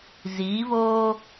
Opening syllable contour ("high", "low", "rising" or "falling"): rising